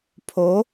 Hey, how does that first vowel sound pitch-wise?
rising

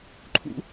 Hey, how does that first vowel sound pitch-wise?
high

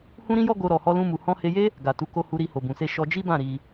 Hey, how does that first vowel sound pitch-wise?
high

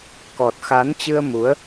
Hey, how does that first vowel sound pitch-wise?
low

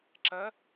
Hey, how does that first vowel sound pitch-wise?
rising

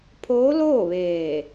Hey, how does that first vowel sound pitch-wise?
rising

